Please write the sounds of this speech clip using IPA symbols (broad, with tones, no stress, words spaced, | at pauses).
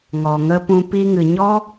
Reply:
ŋɔ˨ŋə˧pũ˧ pi˧ŋɨ˨ɲɔ˦